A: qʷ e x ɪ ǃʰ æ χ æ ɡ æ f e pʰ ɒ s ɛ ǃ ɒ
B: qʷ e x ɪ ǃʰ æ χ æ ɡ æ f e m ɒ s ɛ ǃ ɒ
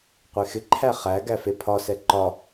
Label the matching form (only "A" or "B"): A